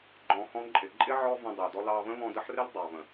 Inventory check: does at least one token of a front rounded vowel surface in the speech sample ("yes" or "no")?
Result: no